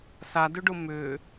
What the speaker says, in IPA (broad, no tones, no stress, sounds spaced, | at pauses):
s a d ʏ ɖ ʊ m ʏ